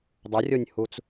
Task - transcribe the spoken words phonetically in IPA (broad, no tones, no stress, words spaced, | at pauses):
dˤərʲonʲhut͡s